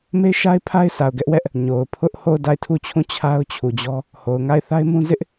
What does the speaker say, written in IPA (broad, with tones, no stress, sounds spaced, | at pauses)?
m e˦ ɪ̯ ʃ a˦ ɪ̯ pʰ a˦ ɪ̯ sʰ a˨ ʊ̯ ɡ ɛ˦ ʔ w ɛ˦ ʔ | ɲ o˨ ʊ̯ pʰ ʊ˦ ʔ h o˦˨ ʊ̯ d a˦˨ ɪ̯ tʰ u˦˨ t͡ɕʰ ũ˦˨ t͡ɕʰ a˦ ʊ̯ t͡ɕʰ u˨ d͡ʑ ɔ˦ | h o˨ ʊ̯ ŋ a˦˨ ɪ̯ θ a˦ ɪ̯ m ũ˦ z ɪ˦ ʔ